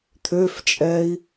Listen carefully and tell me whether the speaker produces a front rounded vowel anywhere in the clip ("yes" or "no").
yes